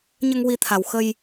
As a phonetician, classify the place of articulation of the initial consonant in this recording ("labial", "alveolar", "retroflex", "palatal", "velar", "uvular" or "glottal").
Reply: palatal